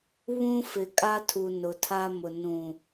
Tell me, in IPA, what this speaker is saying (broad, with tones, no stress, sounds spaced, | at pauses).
β ũ˦ f ɪ˨ kʼ a˦ tʰ u˨ n ʊ˨ tʰ a˦ m ʊ˨ n ũ˨